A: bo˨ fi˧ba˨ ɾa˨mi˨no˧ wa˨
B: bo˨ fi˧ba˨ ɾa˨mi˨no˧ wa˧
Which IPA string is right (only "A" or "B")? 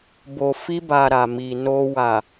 A